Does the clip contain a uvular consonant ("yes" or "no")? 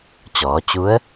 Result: no